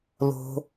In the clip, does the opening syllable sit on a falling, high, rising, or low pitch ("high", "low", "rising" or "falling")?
low